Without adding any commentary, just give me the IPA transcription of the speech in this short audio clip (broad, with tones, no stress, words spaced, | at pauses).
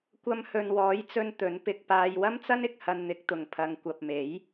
kʷɐ˧mhɵ˨n wɔː˨˥jt͡sɵ˧n t̪ɵ˨˥n pɪ˨k̚paː˧j wɐ˥mt͡sɐ˥nɪ˨˥k̚ hɐ˧nn̪ɪ˨˥k̚t̪ʊ˨ŋ pʰɐ˨˧ŋ kʷɐ˨p̚me˨˥j